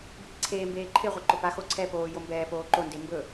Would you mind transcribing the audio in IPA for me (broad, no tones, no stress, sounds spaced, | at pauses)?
bʱ i ǀʰ eː m b eː ǃʰ ɪ ʁʷ e ǃ ʊ p a x o ǀʰ ɛ p oː j o m b ɛː p oː ǃ o n d e m b ɵ